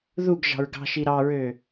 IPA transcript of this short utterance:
ðuɡ ʒɑ̤ɹɡɑ̤ʃi ɾɑɹø

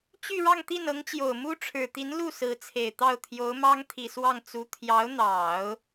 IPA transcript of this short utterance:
t͡ɕy˥˧ɻɑ˥˧ŋ t̪i˥˩nɤ˧˥ŋt͡ɕjo˨˩ʊ̯ mu˥ʈ͡ʂʰɻ̩˨˩t̪i˧˥nlu˥˩ sɹ̩˧˥t͡sʰe˨˩ɪ̯t̪ɑ˥˩ʊ̯ t̪ʰjo˧˥ʊ̯mɑ˥ŋt̪ʰi˨˩swɑ˥˩ŋ t͡su˧˥ t̪ʰjɑ˧˥ʊ̯n̪ɑ˨˩˦ʊ̯

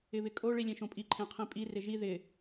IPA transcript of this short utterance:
ɪβɪkʼo ɭilʲẽʃõpʼi ǃʰẽqʰĩpʼi rɪʒi ðɪ

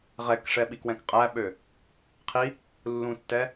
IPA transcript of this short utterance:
ʁɛkʂɛ ɓikwɛ̃kqʼæɓø | qʰi | lːũtːɛ

